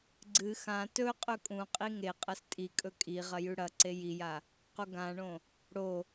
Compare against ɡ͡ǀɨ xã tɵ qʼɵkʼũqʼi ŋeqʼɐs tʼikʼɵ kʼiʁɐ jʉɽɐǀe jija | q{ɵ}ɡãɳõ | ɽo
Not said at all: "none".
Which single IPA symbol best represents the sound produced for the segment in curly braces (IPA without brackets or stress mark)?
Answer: o